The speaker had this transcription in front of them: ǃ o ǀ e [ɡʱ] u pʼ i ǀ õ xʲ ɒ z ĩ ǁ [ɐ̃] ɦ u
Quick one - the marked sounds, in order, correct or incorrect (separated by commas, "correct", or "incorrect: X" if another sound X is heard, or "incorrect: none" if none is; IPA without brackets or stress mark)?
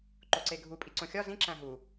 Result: correct, incorrect: æ̃